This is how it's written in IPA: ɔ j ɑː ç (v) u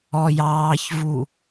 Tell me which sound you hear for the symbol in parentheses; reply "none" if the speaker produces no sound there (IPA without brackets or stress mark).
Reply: v